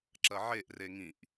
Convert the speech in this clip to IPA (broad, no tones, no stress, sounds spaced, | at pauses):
ǁ ɐ ʕ e ʔ r e ŋ ĩ ʔ